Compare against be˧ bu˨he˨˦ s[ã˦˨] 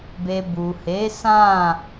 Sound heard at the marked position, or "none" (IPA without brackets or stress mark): ã˦˨